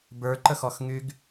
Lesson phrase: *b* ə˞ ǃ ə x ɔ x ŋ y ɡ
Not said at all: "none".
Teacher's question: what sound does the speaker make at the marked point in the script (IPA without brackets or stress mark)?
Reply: b